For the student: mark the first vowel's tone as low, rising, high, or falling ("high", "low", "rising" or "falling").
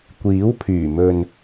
rising